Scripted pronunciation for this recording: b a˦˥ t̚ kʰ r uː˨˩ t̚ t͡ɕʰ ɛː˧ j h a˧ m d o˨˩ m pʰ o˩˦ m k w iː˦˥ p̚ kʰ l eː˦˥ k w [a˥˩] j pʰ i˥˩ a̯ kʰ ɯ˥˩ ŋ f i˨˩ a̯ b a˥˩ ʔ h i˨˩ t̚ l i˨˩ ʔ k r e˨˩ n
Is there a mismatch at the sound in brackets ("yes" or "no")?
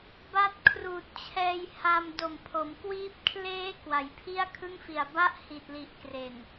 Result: yes